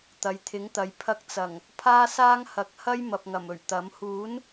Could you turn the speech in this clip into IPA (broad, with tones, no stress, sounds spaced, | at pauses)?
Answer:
t̪ ɐ˨˧ j t̪ʰ ɪ˨˥ ŋ t̪ ɐ˨˧ j pʰ ɐ˧ k̚ t͡s ɐ˨˩ ŋ | pʰ aː˥ s aː˥ ŋ h ɐ˨˥ k̚ h ɐ˥ j m ɐ˨ p̚ ŋ ɐ˨˩ m ɵ˨˩ ɥ t̪ ɐ˨˥ m h uː˨˥ n